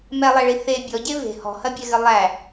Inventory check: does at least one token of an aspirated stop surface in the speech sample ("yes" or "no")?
no